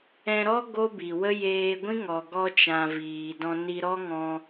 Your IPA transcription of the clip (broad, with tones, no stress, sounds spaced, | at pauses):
ɛ̃˧ ɾ ɔ˦ ɡ o˦ b i˨ w ə˦ j eː˧ ɡʷ ĩ˦ ŋ ɔ˨ ɡ ɔ˧ t͡ʃ ã˨ v iː˨ d ɔ̃˧ n i˧ ɾ ɔ˦ ŋ ɔ̃˧